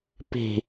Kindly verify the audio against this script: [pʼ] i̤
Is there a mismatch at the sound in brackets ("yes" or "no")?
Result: yes